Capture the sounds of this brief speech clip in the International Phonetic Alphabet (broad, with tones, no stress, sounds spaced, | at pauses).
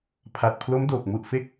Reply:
pʰ a˨˩ t̚ pʰ l o˦˥ m d oː˨˩ k̚ m u˨˩ ʔ f e˥˩ k̚